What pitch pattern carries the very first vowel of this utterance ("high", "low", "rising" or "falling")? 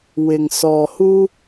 low